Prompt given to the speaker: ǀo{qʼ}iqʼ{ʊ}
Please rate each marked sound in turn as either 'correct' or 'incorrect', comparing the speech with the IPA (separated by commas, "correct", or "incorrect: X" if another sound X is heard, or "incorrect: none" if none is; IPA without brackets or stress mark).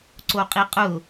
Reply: correct, correct